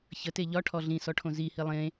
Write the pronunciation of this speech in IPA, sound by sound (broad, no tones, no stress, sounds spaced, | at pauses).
ç ə t e ʎ ɒ ʈʰ ɔ ɮ ĩ s ɔ ʈʰ õ z i h i lˠ ẽ